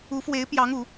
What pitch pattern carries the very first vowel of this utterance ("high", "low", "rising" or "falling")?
rising